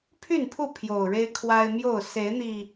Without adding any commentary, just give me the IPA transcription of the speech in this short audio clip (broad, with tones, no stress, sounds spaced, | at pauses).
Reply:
pʰ y˥˨ n pʰ u˥˨ pʰ j o˨˩ ʊ̯ ɻ e˦ ɪ̯ kʰ w a˦ ɪ̯ m j o˥˨ ʊ̯ s e˨˦ ɪ̯ n̪ i˨˩